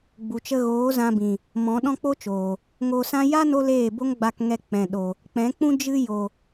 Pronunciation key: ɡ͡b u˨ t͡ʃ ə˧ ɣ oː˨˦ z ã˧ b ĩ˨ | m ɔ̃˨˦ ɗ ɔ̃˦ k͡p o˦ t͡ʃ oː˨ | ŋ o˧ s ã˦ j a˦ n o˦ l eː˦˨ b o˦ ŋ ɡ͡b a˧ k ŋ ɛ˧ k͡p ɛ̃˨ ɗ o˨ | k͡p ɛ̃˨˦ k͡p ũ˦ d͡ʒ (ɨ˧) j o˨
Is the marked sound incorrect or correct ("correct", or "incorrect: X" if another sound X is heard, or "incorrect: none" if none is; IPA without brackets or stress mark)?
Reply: correct